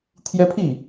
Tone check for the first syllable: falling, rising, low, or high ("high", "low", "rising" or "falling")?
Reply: high